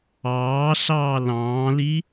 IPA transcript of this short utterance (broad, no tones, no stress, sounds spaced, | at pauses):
ɑː ɬ ɑː l ɑ̃ː l i